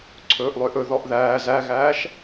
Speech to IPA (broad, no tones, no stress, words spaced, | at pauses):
ǀʰɵːʔlˠøʔɵ ðɔʔðæː zæɣæːʃ